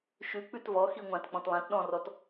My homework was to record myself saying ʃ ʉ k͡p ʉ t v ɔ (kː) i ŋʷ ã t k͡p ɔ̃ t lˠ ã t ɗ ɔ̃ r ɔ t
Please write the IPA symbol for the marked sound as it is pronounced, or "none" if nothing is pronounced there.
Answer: x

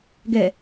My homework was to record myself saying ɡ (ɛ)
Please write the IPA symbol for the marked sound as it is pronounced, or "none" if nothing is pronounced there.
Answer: ɛ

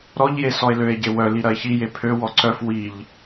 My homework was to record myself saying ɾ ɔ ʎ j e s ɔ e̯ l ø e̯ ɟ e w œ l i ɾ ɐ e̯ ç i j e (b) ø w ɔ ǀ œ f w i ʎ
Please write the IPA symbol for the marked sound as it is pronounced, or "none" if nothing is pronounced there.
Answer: pʰ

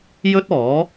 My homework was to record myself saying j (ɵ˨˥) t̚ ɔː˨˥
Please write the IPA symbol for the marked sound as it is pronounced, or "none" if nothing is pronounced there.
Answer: ɵ˥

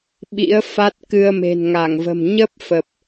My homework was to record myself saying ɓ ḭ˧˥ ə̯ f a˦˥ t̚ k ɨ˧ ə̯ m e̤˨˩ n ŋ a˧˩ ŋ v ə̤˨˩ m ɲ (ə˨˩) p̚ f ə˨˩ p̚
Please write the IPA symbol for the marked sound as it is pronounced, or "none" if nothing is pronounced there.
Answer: ə˦˥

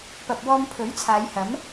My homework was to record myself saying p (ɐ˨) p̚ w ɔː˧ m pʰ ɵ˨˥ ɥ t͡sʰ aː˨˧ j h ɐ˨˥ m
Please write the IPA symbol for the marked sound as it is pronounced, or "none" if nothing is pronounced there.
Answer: ɐ˨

